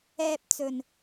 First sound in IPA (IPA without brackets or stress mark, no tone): ɛː